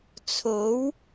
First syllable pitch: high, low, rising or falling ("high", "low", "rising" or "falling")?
rising